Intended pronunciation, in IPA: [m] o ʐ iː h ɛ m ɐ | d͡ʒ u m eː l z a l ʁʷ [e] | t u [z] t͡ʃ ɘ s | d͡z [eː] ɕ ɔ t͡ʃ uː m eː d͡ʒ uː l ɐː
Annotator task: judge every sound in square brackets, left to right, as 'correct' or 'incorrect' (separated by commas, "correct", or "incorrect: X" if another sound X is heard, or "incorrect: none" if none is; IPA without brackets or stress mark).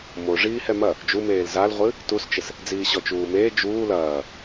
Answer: correct, incorrect: ɨ, incorrect: s, incorrect: iː